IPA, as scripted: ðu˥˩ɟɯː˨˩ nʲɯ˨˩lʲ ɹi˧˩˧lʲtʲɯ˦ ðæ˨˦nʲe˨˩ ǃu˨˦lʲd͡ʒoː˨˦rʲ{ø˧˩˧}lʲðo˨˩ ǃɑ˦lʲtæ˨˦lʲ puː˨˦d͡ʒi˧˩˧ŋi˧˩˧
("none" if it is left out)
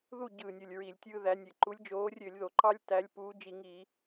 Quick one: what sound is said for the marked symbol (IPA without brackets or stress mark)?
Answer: ø˧˩˧